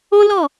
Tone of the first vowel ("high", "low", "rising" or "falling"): high